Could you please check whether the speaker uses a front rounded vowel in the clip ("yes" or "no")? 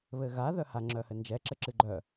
yes